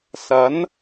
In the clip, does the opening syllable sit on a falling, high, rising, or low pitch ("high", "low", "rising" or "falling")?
rising